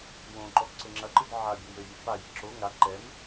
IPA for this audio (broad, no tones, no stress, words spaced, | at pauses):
wõǃɔx ǀɘŋ͡ǁɐǃɨd ʕa bʲɐmjɘvʲɐ faji ǁo ŋa ǃɛm